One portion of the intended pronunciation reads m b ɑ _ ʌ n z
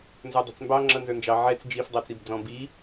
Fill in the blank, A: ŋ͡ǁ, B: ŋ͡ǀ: A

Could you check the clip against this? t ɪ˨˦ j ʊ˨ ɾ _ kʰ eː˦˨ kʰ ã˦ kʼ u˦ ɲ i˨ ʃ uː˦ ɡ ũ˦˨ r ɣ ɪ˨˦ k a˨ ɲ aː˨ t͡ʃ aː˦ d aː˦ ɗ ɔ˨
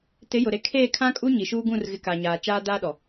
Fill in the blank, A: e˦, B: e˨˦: B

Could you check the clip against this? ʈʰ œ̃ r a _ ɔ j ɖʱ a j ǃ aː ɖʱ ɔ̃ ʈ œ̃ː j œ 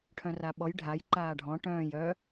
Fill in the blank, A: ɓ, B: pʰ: A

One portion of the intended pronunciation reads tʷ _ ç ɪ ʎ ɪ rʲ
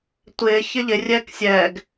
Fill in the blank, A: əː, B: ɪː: B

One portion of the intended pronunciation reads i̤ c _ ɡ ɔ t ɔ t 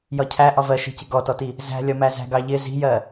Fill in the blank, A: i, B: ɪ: B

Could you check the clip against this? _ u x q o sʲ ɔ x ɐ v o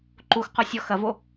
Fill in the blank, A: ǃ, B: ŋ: A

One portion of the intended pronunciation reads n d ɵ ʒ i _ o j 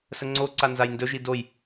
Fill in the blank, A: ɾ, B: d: B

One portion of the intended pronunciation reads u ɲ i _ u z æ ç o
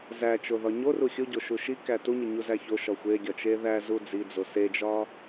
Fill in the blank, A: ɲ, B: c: A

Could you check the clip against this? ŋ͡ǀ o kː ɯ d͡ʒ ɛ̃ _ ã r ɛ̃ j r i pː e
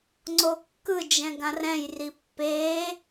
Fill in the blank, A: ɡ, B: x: A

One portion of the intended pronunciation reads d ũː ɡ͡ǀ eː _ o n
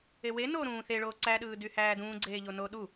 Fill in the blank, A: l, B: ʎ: B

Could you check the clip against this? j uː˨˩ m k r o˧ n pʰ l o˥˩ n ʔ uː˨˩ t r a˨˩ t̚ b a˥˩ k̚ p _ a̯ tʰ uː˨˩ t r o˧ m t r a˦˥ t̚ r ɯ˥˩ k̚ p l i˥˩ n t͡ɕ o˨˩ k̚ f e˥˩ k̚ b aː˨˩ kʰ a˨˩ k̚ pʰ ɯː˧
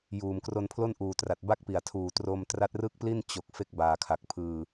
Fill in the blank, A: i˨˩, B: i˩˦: A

